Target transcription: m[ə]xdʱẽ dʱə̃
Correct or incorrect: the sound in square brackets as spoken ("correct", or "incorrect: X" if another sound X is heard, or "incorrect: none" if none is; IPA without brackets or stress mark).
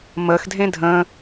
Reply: correct